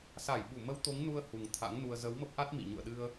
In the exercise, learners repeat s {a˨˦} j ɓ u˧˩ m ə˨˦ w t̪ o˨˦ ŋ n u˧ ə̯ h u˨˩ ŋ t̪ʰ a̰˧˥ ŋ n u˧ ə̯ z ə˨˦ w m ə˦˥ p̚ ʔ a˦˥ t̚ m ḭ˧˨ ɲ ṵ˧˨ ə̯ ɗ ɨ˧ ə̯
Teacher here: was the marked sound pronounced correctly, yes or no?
no